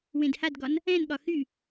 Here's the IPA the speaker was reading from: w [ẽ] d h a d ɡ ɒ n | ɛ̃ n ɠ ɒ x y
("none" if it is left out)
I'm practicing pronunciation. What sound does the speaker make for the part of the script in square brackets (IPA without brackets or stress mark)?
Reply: ẽ